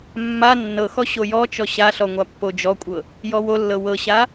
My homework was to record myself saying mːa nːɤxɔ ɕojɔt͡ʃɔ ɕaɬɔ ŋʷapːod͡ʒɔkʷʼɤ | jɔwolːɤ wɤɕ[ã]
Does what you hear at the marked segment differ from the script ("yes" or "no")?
yes